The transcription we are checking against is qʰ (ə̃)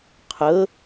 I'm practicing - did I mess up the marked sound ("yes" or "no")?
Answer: yes